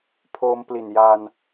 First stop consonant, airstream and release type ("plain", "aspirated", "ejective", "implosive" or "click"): aspirated